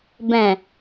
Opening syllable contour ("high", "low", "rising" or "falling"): low